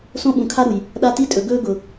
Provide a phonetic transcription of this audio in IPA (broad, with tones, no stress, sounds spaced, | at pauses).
s õ˦ ɓ ũ˨ kʰ a˦ ɾ u˨ j | ɗ a˦ t i˦ tʼ ɵ˨ ɡ ɵ˦ ɡ ʊ˨